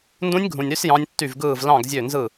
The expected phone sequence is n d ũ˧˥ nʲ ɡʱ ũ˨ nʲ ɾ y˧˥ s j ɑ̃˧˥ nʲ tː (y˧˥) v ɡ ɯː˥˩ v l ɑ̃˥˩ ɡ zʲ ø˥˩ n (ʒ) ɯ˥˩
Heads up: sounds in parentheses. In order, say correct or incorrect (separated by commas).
incorrect, incorrect